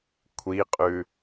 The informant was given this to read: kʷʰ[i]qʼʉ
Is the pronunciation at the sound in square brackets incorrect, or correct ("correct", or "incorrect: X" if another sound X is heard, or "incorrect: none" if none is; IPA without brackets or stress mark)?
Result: correct